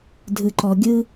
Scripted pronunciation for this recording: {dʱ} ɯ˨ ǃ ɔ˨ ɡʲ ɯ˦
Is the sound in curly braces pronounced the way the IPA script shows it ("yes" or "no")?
yes